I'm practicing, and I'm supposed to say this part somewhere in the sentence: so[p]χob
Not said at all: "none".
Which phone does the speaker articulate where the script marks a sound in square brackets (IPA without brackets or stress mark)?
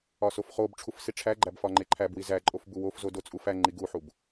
f